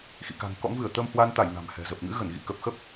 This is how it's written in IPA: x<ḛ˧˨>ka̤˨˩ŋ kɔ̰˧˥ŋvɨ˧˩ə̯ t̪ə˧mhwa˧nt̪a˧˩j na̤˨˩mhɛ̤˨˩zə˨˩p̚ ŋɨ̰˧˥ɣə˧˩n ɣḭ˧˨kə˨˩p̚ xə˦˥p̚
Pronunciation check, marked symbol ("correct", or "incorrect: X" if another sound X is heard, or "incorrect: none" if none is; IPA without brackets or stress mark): incorrect: ḭ˧˨